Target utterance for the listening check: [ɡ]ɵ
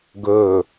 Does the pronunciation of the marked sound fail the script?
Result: no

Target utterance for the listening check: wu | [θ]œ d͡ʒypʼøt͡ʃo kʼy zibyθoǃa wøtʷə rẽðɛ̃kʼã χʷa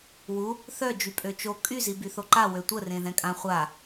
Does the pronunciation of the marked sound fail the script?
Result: no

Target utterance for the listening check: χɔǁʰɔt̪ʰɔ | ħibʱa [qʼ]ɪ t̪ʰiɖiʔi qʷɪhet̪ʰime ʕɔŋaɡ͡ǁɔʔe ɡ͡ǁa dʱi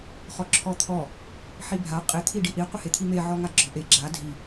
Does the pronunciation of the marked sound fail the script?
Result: no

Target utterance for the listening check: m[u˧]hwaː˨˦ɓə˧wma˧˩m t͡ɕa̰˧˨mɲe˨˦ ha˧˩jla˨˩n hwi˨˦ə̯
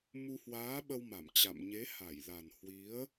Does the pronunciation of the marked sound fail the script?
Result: no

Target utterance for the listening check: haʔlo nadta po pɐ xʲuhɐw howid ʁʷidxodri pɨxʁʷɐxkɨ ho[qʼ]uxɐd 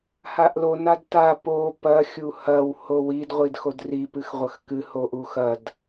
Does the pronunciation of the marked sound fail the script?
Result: yes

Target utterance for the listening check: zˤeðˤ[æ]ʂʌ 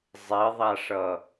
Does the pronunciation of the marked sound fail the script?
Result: yes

